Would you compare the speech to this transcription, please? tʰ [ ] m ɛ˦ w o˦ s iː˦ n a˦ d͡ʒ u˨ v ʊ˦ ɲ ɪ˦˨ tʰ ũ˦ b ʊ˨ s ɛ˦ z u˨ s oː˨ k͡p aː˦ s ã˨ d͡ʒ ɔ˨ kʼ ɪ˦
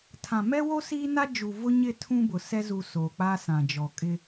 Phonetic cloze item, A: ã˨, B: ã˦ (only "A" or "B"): A